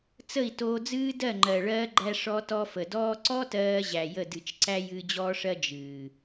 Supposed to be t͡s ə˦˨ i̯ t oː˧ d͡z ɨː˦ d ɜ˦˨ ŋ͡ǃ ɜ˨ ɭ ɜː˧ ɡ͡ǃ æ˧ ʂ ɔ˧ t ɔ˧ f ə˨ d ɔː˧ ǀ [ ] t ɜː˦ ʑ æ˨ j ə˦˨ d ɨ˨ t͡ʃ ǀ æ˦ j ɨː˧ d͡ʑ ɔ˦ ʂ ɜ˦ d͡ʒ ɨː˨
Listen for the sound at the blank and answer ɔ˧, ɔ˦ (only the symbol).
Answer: ɔ˦